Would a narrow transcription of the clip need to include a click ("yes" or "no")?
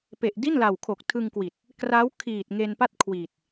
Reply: no